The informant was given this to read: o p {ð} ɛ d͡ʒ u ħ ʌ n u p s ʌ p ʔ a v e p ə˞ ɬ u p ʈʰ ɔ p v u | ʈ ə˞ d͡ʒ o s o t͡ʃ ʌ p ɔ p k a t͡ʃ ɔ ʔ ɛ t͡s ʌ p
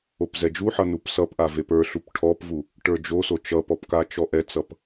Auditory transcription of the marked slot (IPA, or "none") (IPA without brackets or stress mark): z